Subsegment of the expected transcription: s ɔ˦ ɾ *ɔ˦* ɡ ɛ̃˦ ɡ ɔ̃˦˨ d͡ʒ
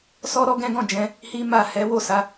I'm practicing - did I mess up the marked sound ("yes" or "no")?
no